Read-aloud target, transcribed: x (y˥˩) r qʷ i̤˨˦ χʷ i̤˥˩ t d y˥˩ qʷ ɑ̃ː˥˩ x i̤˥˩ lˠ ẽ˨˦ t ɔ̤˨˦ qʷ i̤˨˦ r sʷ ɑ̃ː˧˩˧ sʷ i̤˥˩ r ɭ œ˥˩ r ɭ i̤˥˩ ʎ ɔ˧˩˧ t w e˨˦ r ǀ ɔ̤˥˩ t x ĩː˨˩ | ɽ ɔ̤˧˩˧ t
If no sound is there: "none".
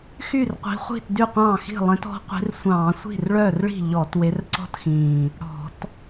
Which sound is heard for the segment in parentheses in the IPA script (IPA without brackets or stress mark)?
y˥˩